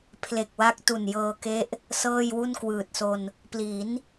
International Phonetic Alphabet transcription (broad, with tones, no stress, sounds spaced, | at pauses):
pʰ l e˨˩ k̚ w a˦˥ k̚ t u˨˩ n j ɤː˧ k e˦˥ ʔ | s ɤː˥˩ j w u˥˩ n k w ɯː˨˩ t̚ s o˧ n | p l i˩˦ n